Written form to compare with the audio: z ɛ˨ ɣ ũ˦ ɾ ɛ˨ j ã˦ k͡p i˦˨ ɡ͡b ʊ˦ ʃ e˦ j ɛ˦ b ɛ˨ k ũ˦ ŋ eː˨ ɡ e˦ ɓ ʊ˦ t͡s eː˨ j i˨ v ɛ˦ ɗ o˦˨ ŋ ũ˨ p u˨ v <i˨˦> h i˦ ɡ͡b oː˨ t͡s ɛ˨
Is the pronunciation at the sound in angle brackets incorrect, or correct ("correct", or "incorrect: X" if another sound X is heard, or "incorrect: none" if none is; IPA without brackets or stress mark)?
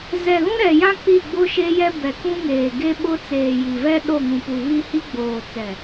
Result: incorrect: i˦